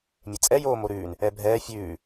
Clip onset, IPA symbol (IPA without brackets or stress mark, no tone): mʲ